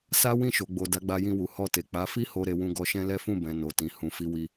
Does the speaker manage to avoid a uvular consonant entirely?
yes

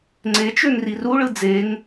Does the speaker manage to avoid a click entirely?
no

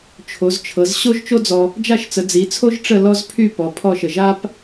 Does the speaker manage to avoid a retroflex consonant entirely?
no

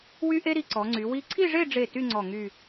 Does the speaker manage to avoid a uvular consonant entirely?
yes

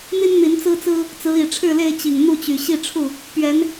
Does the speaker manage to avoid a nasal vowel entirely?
yes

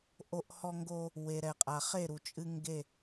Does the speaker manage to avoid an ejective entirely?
no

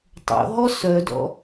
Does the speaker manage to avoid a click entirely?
yes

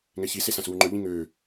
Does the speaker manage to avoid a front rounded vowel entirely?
no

